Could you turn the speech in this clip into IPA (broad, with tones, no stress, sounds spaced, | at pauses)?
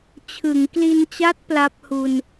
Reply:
t͡ɕʰ ɯ˩˦ ŋ k l i˧ n t͡ɕ a˦˥ t̚ p l a˦˥ p̚ h u˧ n